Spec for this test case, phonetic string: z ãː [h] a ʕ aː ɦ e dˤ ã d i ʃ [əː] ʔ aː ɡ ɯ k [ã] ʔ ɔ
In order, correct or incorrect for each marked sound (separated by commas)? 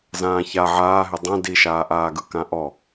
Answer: incorrect, incorrect, correct